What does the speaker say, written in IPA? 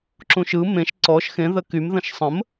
ǁ ũ ʃ ɯ m ẽ ʃ ǀ ɔ ʃ x ẽ ð ə k y m ð ə̃ ʃ sˤ ə̃ m

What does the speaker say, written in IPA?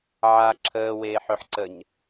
ʕ a ǁʰ əː w eː ħ ɵ ħ ǀ ə ɲ

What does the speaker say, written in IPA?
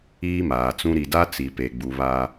iː˦ m aː˨ t͡s ũ˦ ɾ i˨ d a˦ t͡s i˨ p e˨ ɡ͡b u˨ β a˦

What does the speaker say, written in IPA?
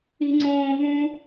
i̤ ŋ͡ǀ õː v ũ

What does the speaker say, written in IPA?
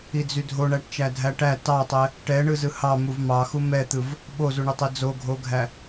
i d͡z y dʱ o ɳ æ ʈ t͡ʃ æ dʱ æ ʈ æ t ɑ tˤ ɛ | ʈ ɛ ɳ ɯ z ɯ h ɑ m u v m ɑ x u m ɛ t̪ ɯ v | ɓ o z u ɳ y tˤ i d͡z o ɡʱ o ɡʱ æ

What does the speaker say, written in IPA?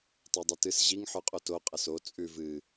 tˤ o dˤ ɨ t ɨ s ʑ i ŋ ħ ʉ qʼ o t o qʼ ɐ s o t͡sʼ ʉ v ɨ

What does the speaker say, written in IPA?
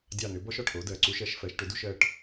dʲ ɑ˦˨ n ʏ˨˥ b ɔ˥ ʃ ɔ˩˧˩ ʈ ʔ o˨˥ d ɜ˩˧˩ ǀ u˥ ʃ ɜ˨˥ ʃ f ɜ˨˥ ʃ ʈ ʏ˨˥ d u˥ ʃ ɜ˩˧˩ ʈ

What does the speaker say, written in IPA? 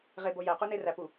ʁ e b o j æ q u n e r æ p u

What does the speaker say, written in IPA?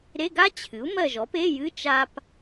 ɾ e˧˥˧ ɡ a˥ t͡ɕʰ ɨ˩˥ u̯ m ɜ˦˨ ʒ ɔ˩˥ p e˧˥˧ j ɨ˧˥˧ t͡ʃ a˥ p

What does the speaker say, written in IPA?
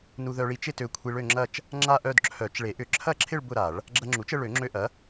n u˧ ð œ˧ ɭ i˧ t͡ʃ ɪ˥˧ t ø˧ kʷʰ i˧ ɭ ø˥˧ ŋ͡ǁ ɐ˥˧ t͡ʃ | ŋ͡ǁ a˥˧ ʔ œ˥˧ d ǁʰ œ˨˩˦ t͡ʃ ɭ e˨˩˦ ʔ ʏ˨˩˦ ǁʰ ɐ˥˧ ǁʰ ɪ˥˧ ɭ b ʊ˥˧ ɾ a˨˩˦ ɭ | ɡ͡ǁ ɐ˧ ŋ͡ǁ u˩˥ t͡ʃ ə˥˧ ɭ ø˨˩˦ ŋ͡ǁ ø˧ ʔ ɐ˩˥

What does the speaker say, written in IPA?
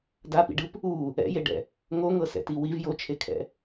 d a p ḭ ɖ ɯ p | u | ɛ̰ j e ɖ ɛ̰ | ŋ o ŋ ɤ s ɛ̰ t i w i v j o t͡ʃʰ e kʰ ɛ̰

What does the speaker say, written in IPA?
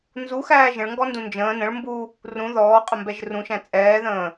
n z u x æː ʒ ə̃ ɭ ŋ ɡ ɔ n d ũ n d͡ʒ ə̃ː n ə̃ ɭ m b u | r ũ ð ɔː qʼ ə m b ɛ ʒ r ũ ʃ æ̃ t͡sʼ ɛː ð ə̃ː

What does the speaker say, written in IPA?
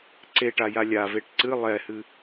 ǀ e ʈ a j a lʲ a v e ʈ ǀ ɨ lˠ ɛ h ɨ

